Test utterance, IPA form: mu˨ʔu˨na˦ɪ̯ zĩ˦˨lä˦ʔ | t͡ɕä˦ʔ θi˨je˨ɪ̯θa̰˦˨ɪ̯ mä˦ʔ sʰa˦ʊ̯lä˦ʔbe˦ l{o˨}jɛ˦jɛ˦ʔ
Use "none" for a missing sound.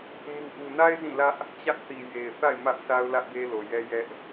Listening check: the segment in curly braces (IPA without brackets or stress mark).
o˨